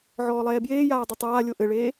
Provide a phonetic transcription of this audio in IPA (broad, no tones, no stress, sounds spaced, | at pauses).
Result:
ʕ ɔː lˠ ɛː b j eː j aː dˤ ɨ tˤ aː lʲ o ʔ ɘ ɭ eː